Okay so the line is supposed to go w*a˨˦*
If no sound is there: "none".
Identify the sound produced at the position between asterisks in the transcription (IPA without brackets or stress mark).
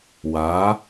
a˨˦